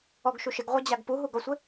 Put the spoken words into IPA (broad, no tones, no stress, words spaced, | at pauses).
ɔɡʃu ʃɪɡʁʷɛd͡ʑaɡ puɦuɡɔsʷɪ